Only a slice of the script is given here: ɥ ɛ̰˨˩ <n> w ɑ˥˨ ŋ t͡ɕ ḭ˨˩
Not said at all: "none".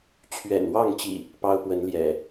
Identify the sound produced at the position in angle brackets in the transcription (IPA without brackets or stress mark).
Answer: n